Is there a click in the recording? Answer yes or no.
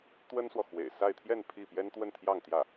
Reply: no